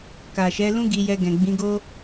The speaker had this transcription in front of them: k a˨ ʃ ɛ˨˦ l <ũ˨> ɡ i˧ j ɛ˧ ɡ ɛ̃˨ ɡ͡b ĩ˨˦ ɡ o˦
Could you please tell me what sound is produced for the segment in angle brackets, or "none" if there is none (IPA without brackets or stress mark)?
ũ˦